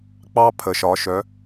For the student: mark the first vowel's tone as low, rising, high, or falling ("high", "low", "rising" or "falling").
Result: high